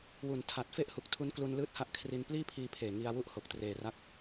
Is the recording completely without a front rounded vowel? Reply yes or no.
yes